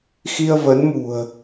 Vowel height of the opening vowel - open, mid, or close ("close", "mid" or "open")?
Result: close